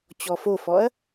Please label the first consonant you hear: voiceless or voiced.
voiceless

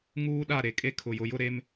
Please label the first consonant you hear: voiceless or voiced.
voiced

